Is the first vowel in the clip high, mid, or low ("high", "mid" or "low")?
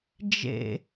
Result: mid